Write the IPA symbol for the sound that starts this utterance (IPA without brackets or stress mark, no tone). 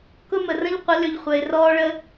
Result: k